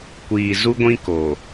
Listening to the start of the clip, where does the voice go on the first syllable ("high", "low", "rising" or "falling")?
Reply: low